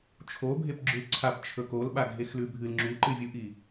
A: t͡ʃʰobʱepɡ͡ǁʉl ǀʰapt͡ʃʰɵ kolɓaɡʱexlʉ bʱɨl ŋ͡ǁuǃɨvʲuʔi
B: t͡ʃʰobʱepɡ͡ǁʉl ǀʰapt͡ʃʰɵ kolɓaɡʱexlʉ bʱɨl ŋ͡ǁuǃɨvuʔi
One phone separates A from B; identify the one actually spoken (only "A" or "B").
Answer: A